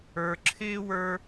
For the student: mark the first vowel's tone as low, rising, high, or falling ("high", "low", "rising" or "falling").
high